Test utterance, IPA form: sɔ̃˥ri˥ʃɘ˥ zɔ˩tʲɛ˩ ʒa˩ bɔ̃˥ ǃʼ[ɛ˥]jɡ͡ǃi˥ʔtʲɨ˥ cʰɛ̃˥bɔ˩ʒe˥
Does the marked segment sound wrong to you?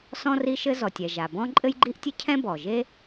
yes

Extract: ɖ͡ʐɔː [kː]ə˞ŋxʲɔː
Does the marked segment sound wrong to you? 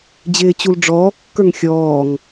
no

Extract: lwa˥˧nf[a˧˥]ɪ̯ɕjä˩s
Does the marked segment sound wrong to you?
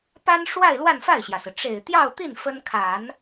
yes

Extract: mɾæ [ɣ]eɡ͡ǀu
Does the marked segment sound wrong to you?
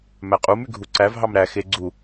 yes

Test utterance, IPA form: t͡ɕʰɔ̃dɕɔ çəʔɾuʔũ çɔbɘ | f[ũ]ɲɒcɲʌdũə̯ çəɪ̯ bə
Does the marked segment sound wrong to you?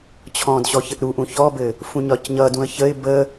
no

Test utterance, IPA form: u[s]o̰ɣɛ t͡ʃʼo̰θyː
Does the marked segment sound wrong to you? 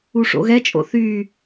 yes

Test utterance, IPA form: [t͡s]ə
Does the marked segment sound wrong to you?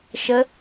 yes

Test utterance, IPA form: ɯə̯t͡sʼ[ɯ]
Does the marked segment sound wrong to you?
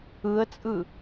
no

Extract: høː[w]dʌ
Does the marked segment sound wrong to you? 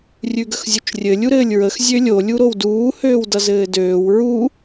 no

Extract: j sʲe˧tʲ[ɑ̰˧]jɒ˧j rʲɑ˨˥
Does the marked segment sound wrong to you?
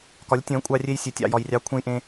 no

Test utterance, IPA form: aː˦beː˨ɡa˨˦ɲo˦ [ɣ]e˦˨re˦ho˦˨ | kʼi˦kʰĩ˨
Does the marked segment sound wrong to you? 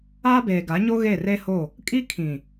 no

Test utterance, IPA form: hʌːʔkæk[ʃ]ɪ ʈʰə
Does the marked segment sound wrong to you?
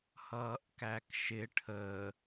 no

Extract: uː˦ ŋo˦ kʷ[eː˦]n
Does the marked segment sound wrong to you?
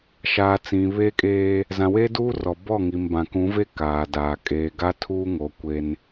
no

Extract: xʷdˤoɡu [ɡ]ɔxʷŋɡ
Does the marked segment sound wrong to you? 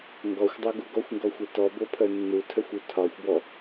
no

